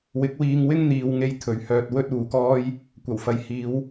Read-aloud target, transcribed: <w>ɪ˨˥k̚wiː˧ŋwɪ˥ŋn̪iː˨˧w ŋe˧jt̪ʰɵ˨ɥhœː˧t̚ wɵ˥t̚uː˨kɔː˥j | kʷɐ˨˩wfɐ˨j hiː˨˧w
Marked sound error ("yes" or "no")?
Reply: no